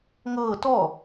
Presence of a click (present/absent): absent